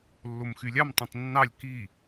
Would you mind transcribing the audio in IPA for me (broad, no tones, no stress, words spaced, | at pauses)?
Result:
lːomxylʲɑm tˤẽtˤnːɑlʲ ki